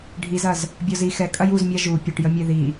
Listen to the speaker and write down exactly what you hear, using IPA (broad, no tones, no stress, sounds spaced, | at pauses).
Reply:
ɖʱ i z ɐ z | bʲ ɔ z i x ɛ kʼ ɐ j u z mʲ a ʒ u pʲ ʊ ʈ j ə mʲ ɛ ð i